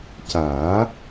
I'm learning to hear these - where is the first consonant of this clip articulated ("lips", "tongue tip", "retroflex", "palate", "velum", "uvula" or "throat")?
palate